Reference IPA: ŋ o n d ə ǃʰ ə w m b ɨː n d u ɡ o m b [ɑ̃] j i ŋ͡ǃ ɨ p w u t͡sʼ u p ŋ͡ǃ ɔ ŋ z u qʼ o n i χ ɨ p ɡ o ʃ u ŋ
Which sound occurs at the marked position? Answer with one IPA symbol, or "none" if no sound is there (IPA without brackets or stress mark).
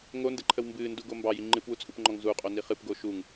ɑ